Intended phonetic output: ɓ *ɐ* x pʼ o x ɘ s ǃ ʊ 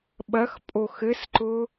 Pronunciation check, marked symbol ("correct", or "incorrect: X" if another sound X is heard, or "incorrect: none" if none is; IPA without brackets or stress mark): correct